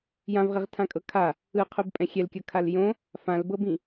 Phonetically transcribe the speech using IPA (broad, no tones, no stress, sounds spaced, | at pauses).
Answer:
j ã v ʁ i ʁ tʰ ã kʼ ɤ kʰ a | ɯ qʰ u b pʼ ɛ̃ xʲ ɛ l kʲ ɤ kʰ a l j õ | f ã l b ɤ b ĩ